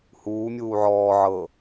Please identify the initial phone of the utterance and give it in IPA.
h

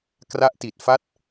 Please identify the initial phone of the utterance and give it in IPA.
k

